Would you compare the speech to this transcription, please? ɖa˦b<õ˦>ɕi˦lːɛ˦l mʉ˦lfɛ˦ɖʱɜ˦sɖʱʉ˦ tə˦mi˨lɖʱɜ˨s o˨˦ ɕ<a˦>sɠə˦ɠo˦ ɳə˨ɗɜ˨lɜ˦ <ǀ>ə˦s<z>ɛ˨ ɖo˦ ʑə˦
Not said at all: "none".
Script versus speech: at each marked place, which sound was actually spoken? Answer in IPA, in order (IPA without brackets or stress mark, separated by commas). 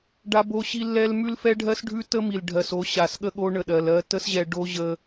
o˦, a˨, t, ʑ